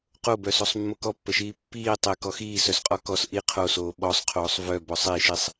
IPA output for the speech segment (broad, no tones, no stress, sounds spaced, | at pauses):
q o b œ s o sˤ mː o k ɔ pː ə ʃ iː pː iː tˤ e k ɔ x iː s œ s qʼ ɔ k ɔ s ʔ i qʰ o s oː ɓ ɔ sˤ qʰ oː sˤ v œ b ɔ sˤ i ʃ i sˤ